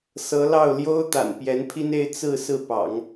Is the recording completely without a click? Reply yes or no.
yes